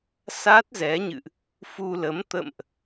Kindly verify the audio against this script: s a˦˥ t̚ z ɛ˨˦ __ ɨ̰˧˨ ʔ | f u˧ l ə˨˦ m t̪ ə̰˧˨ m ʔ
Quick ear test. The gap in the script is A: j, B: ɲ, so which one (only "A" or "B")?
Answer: B